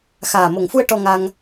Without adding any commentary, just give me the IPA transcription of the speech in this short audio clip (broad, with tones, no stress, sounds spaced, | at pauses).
x aː˨˩ m o˨˩ ŋ f u˧ ə̯ ʈ ɔ˧ ŋ a˧ ŋ